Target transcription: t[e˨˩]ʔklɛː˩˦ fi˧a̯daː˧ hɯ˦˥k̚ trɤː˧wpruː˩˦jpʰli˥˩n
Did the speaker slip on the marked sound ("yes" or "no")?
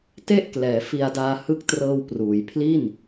yes